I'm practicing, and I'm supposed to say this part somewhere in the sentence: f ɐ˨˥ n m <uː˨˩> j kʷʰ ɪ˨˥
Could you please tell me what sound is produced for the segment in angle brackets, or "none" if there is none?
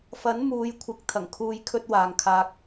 uː˨˧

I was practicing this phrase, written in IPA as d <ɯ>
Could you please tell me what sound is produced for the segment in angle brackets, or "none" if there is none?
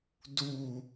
u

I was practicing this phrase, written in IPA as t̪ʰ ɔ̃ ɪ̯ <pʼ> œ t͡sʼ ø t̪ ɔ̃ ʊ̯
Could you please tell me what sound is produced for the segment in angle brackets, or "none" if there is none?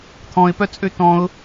p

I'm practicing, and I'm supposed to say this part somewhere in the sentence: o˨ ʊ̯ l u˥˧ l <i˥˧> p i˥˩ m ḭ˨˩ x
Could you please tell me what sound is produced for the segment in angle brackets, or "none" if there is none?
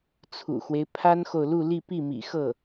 i˥˧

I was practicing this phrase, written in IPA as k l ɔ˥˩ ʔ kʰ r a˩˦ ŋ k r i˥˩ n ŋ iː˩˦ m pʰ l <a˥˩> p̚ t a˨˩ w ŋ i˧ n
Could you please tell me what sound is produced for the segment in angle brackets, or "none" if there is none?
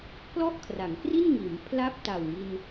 a˥˩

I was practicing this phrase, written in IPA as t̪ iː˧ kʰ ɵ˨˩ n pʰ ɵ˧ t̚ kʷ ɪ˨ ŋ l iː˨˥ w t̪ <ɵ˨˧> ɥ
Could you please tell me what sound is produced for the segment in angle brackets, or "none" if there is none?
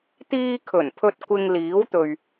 ɵ˨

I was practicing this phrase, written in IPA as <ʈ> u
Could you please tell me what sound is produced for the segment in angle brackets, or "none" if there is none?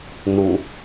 n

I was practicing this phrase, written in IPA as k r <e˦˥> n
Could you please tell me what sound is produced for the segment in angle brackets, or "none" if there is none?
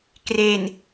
e˨˩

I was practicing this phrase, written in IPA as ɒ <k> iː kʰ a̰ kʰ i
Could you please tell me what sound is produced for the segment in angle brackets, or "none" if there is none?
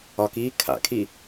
k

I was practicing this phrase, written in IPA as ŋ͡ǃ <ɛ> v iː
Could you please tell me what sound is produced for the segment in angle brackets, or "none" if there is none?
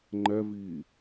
ɛ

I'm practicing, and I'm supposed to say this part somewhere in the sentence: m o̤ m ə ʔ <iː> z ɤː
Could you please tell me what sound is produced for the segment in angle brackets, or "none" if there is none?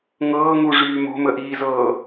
iː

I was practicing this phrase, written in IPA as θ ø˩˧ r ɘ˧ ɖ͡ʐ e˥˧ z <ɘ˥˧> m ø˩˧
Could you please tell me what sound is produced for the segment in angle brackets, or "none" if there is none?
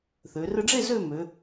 ø˥˧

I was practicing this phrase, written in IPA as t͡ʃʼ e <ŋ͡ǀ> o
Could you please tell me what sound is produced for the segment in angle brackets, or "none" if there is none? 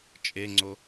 ŋ͡ǀ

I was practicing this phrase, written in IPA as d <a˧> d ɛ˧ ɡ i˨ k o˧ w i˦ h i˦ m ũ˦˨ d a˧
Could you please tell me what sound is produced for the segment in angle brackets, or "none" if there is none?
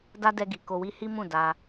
a˦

